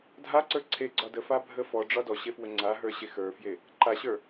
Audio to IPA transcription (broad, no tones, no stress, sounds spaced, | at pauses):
dʱ a ǀ ə˞ ǀʰ e ɡ͡ǀ ɒ d ə f a bʱ ə f ɔ ɖ͡ʐ ɒ d ɔ ɕ e f w ə ŋ͡ǀ a ɦ ə˞ ɕ e x ə˞ f j e | ǃ a ɕ ə˞